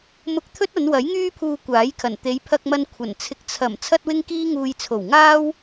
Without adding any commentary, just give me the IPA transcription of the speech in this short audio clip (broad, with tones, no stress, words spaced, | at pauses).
mʊ˧k̚t̪ʰɵ˥t̚ɐ˨˧nwɐ˨˥j ŋyː˥pʰuː˧ kʷaː˨˥jkʰɐ˨˩n t̪e˨˧jpʰɐ˧k̚mɐ˧n kʷʰɐ˨˩nt͡sʰɪ˧k̚ t͡sʰɐ˨˩m t͡sʰɐ˥t̚wɪ˥ŋkiː˥ ŋuː˧jt͡sʰo˨˩w ŋaː˥w